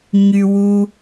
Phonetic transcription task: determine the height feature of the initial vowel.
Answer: high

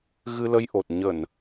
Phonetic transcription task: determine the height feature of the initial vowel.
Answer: high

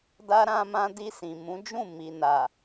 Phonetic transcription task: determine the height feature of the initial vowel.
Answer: low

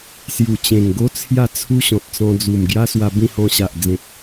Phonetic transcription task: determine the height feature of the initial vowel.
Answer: high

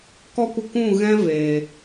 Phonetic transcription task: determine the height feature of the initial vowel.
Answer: mid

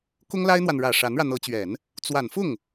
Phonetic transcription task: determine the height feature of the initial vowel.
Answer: high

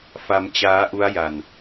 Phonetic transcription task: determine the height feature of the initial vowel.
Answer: low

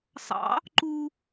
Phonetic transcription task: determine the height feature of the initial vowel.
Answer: low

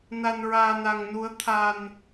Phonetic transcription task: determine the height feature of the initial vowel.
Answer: low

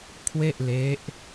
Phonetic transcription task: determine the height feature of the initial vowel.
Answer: mid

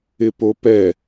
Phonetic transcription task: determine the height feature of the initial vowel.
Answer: high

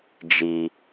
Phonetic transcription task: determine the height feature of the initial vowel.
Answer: high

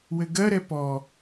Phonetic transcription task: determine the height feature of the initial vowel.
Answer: mid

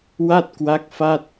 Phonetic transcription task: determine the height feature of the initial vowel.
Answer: low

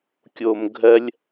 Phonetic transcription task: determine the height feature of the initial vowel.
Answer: mid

